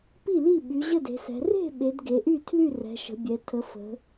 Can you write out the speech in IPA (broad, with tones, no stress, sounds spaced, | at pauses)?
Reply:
p i˥˩ l i˥˩ ɓ y˩˧ ʑ ə˥˩ d e̤˩˧ s ɛ̤˩˧ r e̤˥˩ ɓ e˩˧ d ɡ e˩˧ ʔ y˥˩ tʰ l y˥˩ r ɛ̤˩˧ ʃ ə̤˩˧ bʲ ɛ˩˧ tʰ ə˩˧ f ə̤˩˧